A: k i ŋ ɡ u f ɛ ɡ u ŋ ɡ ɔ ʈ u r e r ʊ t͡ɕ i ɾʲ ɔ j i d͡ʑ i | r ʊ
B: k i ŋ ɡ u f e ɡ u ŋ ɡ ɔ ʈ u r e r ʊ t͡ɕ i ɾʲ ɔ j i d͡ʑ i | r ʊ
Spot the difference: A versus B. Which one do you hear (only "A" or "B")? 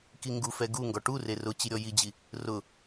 A